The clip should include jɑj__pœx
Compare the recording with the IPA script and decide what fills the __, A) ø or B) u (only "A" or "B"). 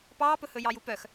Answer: B